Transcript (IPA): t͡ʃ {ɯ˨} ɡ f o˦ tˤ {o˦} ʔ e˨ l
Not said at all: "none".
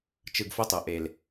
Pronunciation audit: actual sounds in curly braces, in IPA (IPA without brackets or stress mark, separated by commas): ɯ˨, o˨